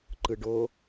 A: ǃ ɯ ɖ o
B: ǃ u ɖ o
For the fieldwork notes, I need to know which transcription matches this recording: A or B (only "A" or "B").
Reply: A